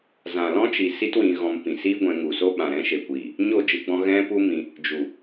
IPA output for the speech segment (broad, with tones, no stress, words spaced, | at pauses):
zã˨lɔ̃˦t͡ʃi˨ si˦twĩ˧ɣɔ̃˧m pĩ˨siː˦ɡʷɛ̃˧ ŋu˨so˦ ɓã˨ɾɛ̃˧ʃe˨kʷiː˨ | ɲo˦˨d͡ʒɨ˧ɡ͡bɔ̃˧ ɣɛ̃˦pu˦mĩ˧ | d͡ʒu˨